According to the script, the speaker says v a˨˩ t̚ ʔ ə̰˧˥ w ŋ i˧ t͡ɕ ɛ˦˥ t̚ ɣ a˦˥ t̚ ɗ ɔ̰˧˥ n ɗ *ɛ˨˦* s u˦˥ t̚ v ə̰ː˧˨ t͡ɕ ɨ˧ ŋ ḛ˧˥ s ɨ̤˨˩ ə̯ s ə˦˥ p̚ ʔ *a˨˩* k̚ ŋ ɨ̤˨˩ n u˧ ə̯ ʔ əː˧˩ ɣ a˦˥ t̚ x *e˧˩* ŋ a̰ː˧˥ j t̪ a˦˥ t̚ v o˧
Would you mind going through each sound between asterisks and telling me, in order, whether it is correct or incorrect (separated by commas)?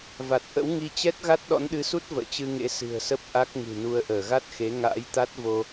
incorrect, incorrect, incorrect